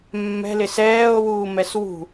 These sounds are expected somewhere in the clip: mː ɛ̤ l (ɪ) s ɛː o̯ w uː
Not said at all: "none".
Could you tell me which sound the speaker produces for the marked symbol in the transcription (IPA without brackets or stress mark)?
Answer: ɪ